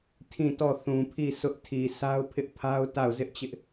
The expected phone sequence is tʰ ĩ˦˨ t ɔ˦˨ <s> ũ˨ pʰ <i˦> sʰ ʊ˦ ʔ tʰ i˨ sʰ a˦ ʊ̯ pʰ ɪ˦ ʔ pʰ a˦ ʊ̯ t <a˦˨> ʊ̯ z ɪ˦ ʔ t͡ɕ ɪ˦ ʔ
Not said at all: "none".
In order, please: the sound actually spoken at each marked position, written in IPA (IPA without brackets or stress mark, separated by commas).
θ, i˦˨, a˦˨